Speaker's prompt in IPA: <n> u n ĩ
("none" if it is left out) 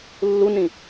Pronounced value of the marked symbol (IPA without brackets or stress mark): lː